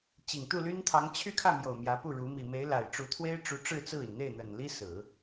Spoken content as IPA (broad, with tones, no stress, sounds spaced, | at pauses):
t͡ɕ i˨˩ ŋ t̪ u˥˩ l y˥ n t̪ʰ ɑ˧˥ ŋ t͡ɕʰ y˥˧ kʰ ä˥˩ m j o˨˩ ʊ̯ m j ä˧˥ p u˥˩ ɻ u˧˥ m i˨˩ m e˧˥ ɪ̯ l a˨˩ ɪ̯ ʈ͡ʂ u˧˥ t̪ʰ w e˥ ɪ̯ ʈ͡ʂ u˧˥ ʈ͡ʂ ɻ̩˥˧ t͡s ɹ̩˥˩ i˩ n n̪ e˥˩ ɪ̯ n̪ ə˨˩ n l i˥ s ɹ̩˨˩˦